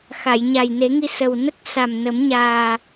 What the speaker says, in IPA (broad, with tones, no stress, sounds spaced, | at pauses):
x a˨˩˨ j ɲ a˨˩ j n e˨˩˦ ŋ i˧ s ə˨˩ w n ə˦˥ k̚ s a˨˩ m n ə˨˩˦ m ɲ aː˨˩